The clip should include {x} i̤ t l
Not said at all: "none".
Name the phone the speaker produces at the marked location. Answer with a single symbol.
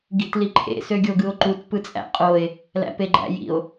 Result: ɡ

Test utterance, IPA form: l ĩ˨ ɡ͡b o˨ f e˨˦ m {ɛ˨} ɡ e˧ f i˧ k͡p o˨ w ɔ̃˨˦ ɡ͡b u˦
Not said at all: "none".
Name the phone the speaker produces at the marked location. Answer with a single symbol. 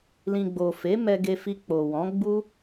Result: ɛ˧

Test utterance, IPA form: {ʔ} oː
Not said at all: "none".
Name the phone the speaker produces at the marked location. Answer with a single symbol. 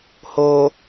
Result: h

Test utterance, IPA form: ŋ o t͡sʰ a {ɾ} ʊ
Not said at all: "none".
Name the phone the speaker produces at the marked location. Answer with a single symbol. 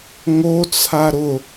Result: ɾ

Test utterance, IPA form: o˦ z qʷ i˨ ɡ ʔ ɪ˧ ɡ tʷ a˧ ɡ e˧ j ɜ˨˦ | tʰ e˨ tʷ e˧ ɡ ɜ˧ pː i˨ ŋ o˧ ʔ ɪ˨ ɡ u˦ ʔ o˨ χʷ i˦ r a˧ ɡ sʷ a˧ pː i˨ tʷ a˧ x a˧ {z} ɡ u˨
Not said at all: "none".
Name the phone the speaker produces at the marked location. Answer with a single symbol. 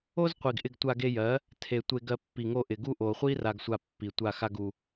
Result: none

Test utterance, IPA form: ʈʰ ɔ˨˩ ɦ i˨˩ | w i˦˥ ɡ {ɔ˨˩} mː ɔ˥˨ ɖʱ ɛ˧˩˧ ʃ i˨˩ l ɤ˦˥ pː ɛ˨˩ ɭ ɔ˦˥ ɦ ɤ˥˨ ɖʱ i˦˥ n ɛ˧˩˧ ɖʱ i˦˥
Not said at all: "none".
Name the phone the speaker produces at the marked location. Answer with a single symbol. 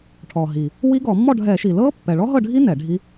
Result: ɔ˧˩˧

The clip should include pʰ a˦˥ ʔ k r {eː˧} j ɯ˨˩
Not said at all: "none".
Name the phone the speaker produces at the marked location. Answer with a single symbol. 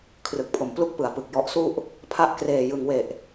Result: eː˨˩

